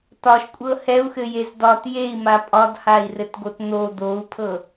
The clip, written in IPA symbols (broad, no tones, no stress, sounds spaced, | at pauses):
t ɒ ʃ kʷʼ ɤ h ɛ u̯ x ɘ j e z d ɒ t j e i̯ m a pʼ ɒ d h a i̯ r ɘ t ɡ o t n̪ o d̪ o u̯ pʰ ɤ